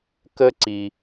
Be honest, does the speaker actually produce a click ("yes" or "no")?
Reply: yes